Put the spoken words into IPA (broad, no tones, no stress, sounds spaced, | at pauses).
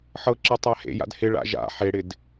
ħ ɤ ǁ ɤ tˤ a h ḛ j a̰ d h ɪ ɭ a̰ ʒ a̰ ħ e ɽ ɪ d